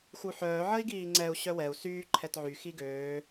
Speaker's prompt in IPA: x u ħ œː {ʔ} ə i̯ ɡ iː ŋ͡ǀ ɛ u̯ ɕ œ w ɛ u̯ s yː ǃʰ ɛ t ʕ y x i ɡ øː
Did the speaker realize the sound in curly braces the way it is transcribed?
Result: no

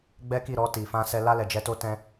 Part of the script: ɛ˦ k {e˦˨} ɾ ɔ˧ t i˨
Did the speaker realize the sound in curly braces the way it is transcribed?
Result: no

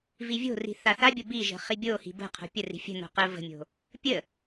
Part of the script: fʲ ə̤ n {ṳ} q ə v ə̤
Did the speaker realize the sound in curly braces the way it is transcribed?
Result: no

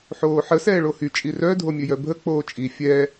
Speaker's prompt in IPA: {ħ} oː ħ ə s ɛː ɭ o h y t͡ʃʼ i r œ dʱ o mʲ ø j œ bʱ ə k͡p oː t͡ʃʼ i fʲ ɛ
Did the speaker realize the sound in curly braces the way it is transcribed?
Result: yes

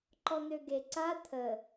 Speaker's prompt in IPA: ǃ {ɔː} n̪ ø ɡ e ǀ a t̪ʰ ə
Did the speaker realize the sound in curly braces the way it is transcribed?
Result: no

